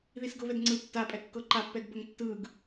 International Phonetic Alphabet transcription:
ð i s ɡ ɤ β ɛ d ŋ͡ǀ ɯ tː a pʼ ɛ kː ɤ ǃ a pː ɛ ɡ b ə ŋ tː ɯ ɡ

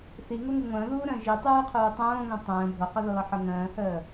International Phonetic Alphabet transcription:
θ i ŋ o ŋ u ŋʷ ə̃ː ð uː ɾ ə̃ː ʒ i tˤ uː qʰ uː tˤ õː ŋ õ tˤ ə̃ː bʱ o q ə ð ɤː ħ ɤ ŋ ə̃ː h əː

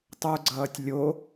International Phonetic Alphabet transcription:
tˤ u ɡ͡ǀ ʌː tʲ lʲ o

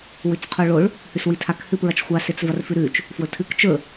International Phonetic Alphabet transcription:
w ʉ t͡s qʰ o ɭ o ɭ | h ʉ s w i tʰ a k h ɨ p ɹ ɐ t͡ʃ xʷ a s e t͡s v ɐ r f ʉ ɾ ʉ t͡ʃ | f w ɵ tʰ ɨ k t͡ʃ ɵ

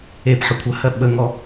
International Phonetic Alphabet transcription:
e p ħ ə kʷʰ ə h ɜ ɓ ə ŋ ɔ

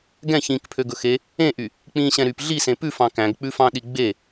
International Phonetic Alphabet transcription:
ɡ ɛ̃ ç ĩː k pʰ ø ɡ ɵ x e | ẽ ʔ y | k͡p ĩː ɕ ɛ̃ ɾ y p ɮ i s ẽ p ʉ f ɑ̃ k æ̃ ɡ k͡p ʉ f ɑ̃ ɗ i ɡ͡b e

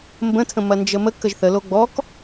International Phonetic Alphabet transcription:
m b ə̃ tʰ ə̃ m ɐ n d͡ʒ ə m ə k ə ʒ θ ə l o ɡ͡b ɔ k

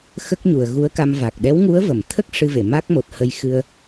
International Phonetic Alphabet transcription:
x ə˦˥ k̚ ɲ u˨˩ ə̯ ɣ u˧˥ ə̯ k a˧ m v a˨˩ k̚ ɗ ɛ˧˥ w ŋ u˧˥ ə̯ v ə˨˩˨ m t̪ʰ ə˦˥ k̚ ʂ ɨ˧ v e˨˩˨ m a˦˥ k̚ m o˨˩ t̚ h ə˧ j x ɨ˧ ə̯

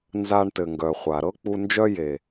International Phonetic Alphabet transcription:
n z a˧ ɳ t ɘ˨ ŋ ɡ œ˨ χʷ a˨ ɾ ɤ˦ k͡p u˧ n d͡ʒ œ˦ j e˨

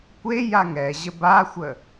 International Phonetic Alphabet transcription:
kʷ e j a ŋ ɛ ʑ ə b a xʷ ə

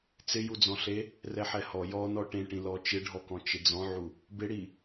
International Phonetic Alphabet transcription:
t͡s ɪ j u d͡z ɔ̃ ɬ e | r ɛ ħ ɛ h ɔ j ɔ n ɔ ʈ ẽ ʈ ĩ l ɔ t͡ʃ ɪ ɖʱ ɔ k ɔ̃ t͡ʃ ɪ d͡z ɔ̃ ʕ u | b ɪ ɽ i

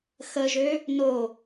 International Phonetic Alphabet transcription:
x ə ʒ ø | n o

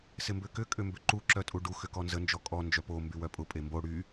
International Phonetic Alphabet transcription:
s ɪ m b ʏ k ʏ kʼ ʏ m b ʏ ǃ u ǁ œ tʼ u ɖ u x ʏ k ɔ n z ə n d͡ʒ ɔ kʼ ɔ n d͡ʒ œ p o m b y w œ pʼ ʊ pʼ e m b o ɽ y

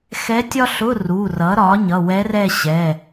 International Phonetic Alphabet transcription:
x ɛ˧˥ tʲ ɒ˥ ɬ ʊ˧˥˧ r u˩˧˩ r ʌ˩˥ ɾ ɒ˩˥ ɲ ʌ˩˧˩ w ɛ˧˥ r ɛ˥˧ ɕ ɛ˩˧˩

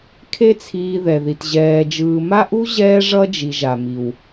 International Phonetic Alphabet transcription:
kʰ e˦ t͡sʰ iː˨ ð ɛ˩ ð i˩ t ʑ ɛː˨ d͡ʒ ɯː˨ m a˥ ʔ u˥ ʑ ɛː˦ ʐ ʌ˦ d͡ʒ i˨ ʒ a˩ m i˩ w

